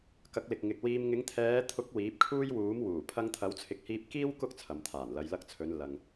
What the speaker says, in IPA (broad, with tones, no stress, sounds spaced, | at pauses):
k ɐ˨˥ k̚ l ɪ˨ k̚ ŋ ɪ˨ k̚ w iː˨ m ŋ ɪ˨˧ ŋ t̪ʰ ɛː˨˧ t̪ʰ ʊ˨˥ k̚ w iː˨˥ p̚ kʰ uː˥ j w uː˨˥ m w uː˨˩ pʰ ɐ˧ ŋ t̪ʰ ɐ˨˥ w t͡sʰ ɪ˨˥ k̚ h iː˧ p̚ k iː˥ w k ʊ˥ k̚ t͡sʰ ɐ˨ m t̪ʰ aː˨˩ n l ɐ˨ j l ɐ˧ k̚ t͡sʰ ɵ˨˧ n l ɐ˨ ŋ